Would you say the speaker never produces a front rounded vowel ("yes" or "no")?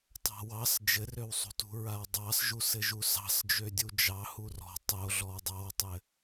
no